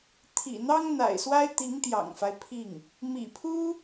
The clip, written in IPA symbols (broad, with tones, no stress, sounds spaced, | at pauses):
t̪ʰ ḭ˨˩ n̪ ɑ˥ ŋ n̪ a̰˨˩ ɪ̯ s w a˥ ɪ̯ t̪ i˧˥ ŋ t̪ j ɑ̰˨˩ ŋ f a˦ ɪ̯ pʰ i˥˩ ŋ | m ḭ˨˩ pʰ u˥